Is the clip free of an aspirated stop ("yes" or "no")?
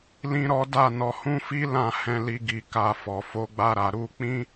yes